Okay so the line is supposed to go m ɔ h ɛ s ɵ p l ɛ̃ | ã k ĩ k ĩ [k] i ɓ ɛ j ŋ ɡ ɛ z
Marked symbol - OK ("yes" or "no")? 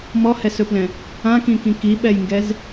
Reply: yes